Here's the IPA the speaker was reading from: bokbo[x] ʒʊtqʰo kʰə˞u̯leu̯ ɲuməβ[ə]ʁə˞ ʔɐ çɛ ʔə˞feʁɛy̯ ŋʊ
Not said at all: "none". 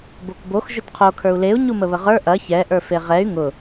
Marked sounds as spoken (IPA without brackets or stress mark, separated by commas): x, ə